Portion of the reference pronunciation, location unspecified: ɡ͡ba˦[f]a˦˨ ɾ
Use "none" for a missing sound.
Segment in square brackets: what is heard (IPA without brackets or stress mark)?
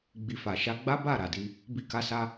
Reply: b